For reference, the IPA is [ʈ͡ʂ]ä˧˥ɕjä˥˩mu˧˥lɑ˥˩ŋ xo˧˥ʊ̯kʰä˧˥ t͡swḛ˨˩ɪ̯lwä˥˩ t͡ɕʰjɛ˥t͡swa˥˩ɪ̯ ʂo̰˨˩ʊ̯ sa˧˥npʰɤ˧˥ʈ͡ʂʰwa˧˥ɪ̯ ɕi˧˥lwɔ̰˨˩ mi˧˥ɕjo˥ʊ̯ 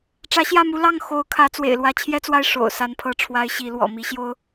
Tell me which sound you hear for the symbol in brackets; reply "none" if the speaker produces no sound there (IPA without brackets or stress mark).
ʈ͡ʂ